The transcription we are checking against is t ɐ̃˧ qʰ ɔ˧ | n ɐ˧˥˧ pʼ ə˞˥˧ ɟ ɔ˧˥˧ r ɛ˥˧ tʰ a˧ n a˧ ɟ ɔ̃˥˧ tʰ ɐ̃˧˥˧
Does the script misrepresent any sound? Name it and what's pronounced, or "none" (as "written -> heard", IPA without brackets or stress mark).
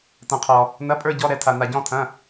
r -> ɾ